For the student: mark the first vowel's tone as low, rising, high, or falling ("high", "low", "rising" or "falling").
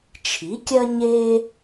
rising